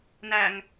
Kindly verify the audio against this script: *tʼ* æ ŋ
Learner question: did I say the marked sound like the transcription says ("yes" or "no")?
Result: no